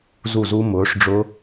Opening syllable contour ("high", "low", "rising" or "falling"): falling